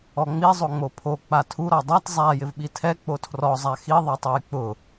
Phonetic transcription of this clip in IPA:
ɔ ŋ͡m i zˤ o ŋ͡m o pʰ o k͡p a tʰ u ɾ ɔ dˤ a t zˤ a j ɪ v ɓ i tʰ ɛ k͡p o tʰ r ɔ zˤ a x i ðˤ ɛ tˤ o j k͡p ʊ

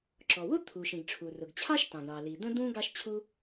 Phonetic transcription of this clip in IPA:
ǁ ɔ˩ w ʊ˥ t̪ʰ u˩ ʃ ĩ˩ ɡ ʈ͡ʂʰ u˩ r ʊ˩ ɡ t͡ɕʰ ɑ˥ ʃ t ɑ̃˩ ɡ ɳ ɑ˩ l i˩ d̪ ə̃˥ d̪ ũ˥ ɡ ɑ˥ ʃ t͡ɕʰ u˥

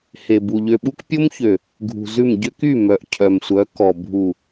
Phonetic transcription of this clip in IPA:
h e˨ b u˨ ʎ ø˨ ɓ u˦ k pʲ o˦ m ç ø˨ | ɡʱ ṳ˨ z ʉ˦˨ m ɟ ø˦ k y˦˨ m œ˨ ʔ cʰ œ˨ m sʷ œ˨˦ k ɔ˨ bʱ u˨

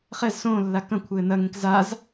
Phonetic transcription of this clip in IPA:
χ ɛ z s õː lː a k ɐ̃ kʷʰ ɘː n ɐ ŋ ẽ k z a z

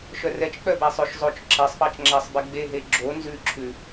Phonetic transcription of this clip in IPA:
ʃ œ r ɛ t͡ʃ k͡p œ b æ sˤ ø ʃ zˤ o t͡ʃ ǁ ɛ sˤ p ɑ t͡ʃ ŋ͡ǁ æ sˤ b ɛ ɡ͡b e ɦ e ɡ͡ǁ o n z ʉ ǁʰ ʉ

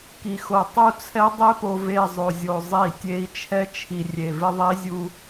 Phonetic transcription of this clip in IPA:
k i˨ x o˨ tˤ u˦ t͡sʰ ɛ˦ dˤ e˦ p o˨ v e˦˨ zˤ o˨ zʲ o˨ zˤ i˦˨ tʲ e˦ i̯ t͡ʃʰ ɛ˦ t͡ʃʰ i˨ rʲ e˨ v ɪ˦ ðˤ i˦ zʲ u˦

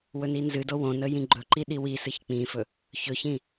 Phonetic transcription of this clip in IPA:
w ɵ n i n z ɨ d o w õ n ə j ĩ ɡ͡ǃ ɵ ǃ i ɗ i w i s ɨ ç k͡p ĩ f ɵ | ç ɵ ç ĩ

